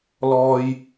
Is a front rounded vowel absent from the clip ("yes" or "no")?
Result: yes